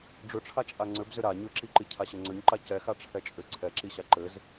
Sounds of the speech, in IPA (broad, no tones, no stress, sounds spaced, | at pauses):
ɖ͡ʐ ʏ ʈ͡ʂʰ a t͡ʃʼ a ŋ͡ǀ ʏ b z ʏ ɾ a ɲ ʏ ǁ i ǃ i cʰ a ɕ ɘ ŋ͡ǀ ʏ ɲ ǃ a c ɛ x a ʈ͡ʂʰ ɛ t͡ʃʼ ʏ ǀʰ ɛ ǁ i ɕ a ǃ ɘ z